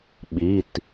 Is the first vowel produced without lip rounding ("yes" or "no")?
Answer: yes